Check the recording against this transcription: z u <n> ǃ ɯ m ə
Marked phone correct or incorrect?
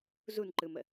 correct